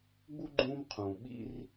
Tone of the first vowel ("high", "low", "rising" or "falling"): high